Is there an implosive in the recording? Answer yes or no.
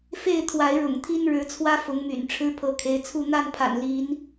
no